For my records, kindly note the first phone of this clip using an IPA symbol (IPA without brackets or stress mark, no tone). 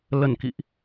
l